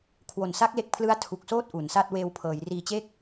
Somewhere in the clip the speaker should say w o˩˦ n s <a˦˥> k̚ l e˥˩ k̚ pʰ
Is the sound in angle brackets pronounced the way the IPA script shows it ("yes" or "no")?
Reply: yes